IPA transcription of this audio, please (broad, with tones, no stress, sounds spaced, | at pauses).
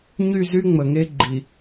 ɲ y˦˨ z y˦ ŋ͡m ə˨ ŋ e˦ ɡ͡ǃ i˨